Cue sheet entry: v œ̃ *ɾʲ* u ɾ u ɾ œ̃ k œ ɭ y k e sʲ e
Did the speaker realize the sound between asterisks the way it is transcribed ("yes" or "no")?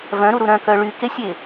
no